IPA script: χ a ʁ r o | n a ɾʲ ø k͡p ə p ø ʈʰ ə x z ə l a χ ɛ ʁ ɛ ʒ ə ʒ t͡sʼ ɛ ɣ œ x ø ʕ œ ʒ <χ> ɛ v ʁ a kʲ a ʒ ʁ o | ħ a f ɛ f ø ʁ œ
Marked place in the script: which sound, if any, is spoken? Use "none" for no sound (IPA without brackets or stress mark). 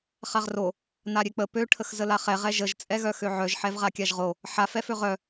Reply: ħ